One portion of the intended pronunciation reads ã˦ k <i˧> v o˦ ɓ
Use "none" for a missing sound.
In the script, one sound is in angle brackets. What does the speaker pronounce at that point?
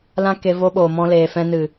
e˧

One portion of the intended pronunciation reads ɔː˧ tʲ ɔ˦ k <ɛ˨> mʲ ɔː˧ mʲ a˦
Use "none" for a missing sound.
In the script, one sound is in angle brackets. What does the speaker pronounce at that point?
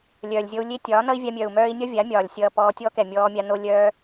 ɛ˨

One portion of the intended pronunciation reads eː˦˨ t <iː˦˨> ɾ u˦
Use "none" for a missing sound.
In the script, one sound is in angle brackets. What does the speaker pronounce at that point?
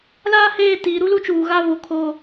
iː˨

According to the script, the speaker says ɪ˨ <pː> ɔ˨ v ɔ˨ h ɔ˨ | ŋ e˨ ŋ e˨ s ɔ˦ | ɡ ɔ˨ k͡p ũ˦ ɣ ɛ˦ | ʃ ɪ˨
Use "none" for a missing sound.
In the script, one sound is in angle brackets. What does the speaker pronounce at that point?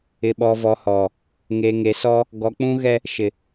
ɓ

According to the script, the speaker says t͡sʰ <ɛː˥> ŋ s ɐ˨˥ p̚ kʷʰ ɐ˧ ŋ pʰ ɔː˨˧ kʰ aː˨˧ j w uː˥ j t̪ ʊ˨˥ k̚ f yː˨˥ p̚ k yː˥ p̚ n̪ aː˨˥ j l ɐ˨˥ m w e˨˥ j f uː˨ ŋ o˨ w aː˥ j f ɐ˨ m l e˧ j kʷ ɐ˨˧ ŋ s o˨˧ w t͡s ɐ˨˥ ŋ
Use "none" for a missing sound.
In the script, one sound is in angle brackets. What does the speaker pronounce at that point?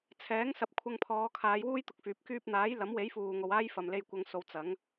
ɛː˨˥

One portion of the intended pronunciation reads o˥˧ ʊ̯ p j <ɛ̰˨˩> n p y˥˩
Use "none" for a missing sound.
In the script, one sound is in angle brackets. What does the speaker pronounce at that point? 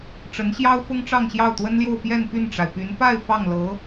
ɛ˥˧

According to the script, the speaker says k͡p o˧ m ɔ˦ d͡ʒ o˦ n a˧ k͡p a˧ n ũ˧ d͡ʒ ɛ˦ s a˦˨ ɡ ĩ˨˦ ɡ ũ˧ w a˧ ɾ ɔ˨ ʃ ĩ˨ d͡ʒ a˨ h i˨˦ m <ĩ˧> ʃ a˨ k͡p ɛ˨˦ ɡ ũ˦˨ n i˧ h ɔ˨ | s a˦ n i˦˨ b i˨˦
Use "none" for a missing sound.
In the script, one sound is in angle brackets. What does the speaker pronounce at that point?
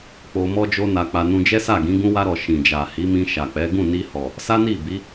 ĩ˧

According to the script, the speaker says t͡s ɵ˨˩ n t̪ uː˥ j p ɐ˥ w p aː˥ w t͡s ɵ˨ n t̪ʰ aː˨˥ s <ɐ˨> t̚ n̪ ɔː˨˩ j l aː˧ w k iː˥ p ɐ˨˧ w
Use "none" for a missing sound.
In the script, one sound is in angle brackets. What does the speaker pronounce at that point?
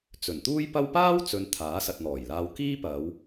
ɐ˨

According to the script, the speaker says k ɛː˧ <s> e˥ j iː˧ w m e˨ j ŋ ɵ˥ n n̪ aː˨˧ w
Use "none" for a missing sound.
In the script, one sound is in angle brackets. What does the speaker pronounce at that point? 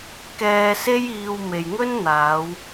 s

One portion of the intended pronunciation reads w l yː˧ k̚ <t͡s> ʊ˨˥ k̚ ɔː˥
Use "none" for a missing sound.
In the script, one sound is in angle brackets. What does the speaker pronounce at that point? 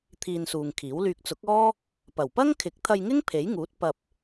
t͡s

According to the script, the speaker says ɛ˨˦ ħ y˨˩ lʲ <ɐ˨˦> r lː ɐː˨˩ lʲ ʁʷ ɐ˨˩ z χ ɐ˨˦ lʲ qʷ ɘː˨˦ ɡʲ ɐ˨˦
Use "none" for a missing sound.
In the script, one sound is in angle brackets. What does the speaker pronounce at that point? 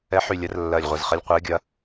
ɐ˨˦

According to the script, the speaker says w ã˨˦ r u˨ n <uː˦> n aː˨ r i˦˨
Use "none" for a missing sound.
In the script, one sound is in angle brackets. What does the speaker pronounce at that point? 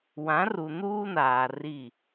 uː˦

